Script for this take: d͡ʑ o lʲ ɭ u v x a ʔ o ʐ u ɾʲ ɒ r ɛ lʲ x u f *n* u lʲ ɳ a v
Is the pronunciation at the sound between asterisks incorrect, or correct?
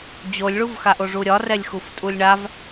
incorrect